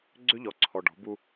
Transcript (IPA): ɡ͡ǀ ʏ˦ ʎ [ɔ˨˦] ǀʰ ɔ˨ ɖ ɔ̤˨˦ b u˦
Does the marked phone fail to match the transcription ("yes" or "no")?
yes